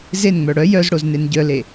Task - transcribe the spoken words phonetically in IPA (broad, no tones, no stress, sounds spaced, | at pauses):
z e n ŋ͡m œ ɽ œ j œ z ɽ o z n e n ɟ œ l e